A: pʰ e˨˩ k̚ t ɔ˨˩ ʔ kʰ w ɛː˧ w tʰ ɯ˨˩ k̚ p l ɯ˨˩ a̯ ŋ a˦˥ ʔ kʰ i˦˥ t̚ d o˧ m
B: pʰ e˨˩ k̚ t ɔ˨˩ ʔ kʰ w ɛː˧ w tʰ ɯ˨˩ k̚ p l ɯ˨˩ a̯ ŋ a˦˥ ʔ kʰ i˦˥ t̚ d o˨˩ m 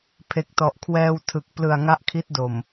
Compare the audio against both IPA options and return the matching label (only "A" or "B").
B